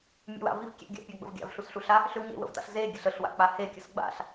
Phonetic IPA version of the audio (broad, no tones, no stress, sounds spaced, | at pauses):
mʲ ḛ w a̰ v i v kʲ ḛ ɡʲ a̰ pʲ a ɡ͡b ə̰ v ɡʲ a̰ v ɬ u s ɬ u ɬ a | ɬ ʏ w ɲ ḛ w ə̰ v t a̰ ɬ z e ɡʲ ə ɬ ə ɬ w a̰ k͡p a h e kʲ ə s ɡ͡b a̰ ɬ